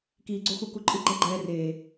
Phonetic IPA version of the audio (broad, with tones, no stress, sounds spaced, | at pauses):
k iː˧ ɡ͡ǀ o˦ x u˧ k u˧ ǃʼ ɯ˦ ɡ͡ǃ ɛ˦ ɡ͡ǃ ɛː˧ r eː˨